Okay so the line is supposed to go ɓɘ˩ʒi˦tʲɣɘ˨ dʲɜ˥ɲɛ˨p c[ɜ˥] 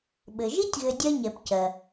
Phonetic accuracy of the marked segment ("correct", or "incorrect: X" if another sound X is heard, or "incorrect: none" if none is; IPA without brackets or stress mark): incorrect: ɜ˩